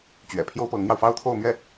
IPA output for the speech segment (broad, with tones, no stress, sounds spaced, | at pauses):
t͡ɕ ɥ ɛ̰˨˩ pʰ j o˥ ʊ̯ p ɤ˧˥ ŋ n̪ j ɑ˧ ʊ̯ f ɑ˥ ʊ̯ t̪ʰ o˥˧ ʊ̯ m ɥ ɛ˥˩